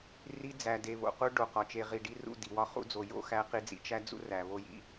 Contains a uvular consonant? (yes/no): yes